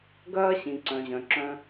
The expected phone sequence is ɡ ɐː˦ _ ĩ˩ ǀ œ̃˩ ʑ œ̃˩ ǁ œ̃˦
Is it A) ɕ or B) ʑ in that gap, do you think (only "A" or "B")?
A